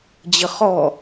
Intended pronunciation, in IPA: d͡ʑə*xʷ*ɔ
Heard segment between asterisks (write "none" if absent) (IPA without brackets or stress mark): χ